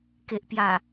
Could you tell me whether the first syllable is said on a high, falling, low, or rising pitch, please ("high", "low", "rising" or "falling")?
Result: low